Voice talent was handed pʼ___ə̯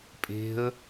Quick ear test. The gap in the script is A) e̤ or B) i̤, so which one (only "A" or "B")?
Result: A